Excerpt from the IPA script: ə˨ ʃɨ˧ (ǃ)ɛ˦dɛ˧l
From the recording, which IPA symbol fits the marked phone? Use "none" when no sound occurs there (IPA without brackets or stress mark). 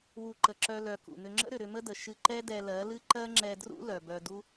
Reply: ǃ